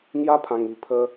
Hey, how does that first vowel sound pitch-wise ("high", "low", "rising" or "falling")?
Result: high